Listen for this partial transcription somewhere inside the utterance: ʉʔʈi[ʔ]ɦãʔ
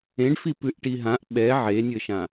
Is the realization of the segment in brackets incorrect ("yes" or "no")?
yes